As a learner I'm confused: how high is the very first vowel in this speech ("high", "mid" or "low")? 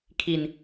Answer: high